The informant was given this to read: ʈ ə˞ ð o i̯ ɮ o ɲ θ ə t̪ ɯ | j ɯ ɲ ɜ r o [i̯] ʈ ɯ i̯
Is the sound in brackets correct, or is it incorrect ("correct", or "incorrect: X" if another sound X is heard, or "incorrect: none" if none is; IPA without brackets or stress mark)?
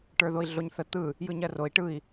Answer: correct